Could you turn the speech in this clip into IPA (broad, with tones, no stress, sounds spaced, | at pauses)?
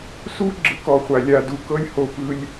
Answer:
s u˦ ɡ͡ǁ ɯ˧ k ɔ˨ χʷ a˨ lʲ a˨ d u˧ k ɤ˦ lʲ h o˧ p ɯ˦ lʲ